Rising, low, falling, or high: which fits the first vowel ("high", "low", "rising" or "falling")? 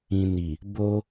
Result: low